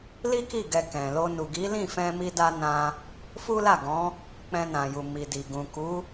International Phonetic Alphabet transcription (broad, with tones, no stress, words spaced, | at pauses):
li˦ki˦˨ ɡɛ˧ kɛ̃˨lo˧ nu˨ɡi˨˦lĩ˦˨ fɛ̃˧mi˧da˧ nã˧ | fu˦la˦˨ɡɔ̃˨˦ | k͡pɛ̃˧nã˨ju˨ mi˨di˨ ɡũ˨ku˨˦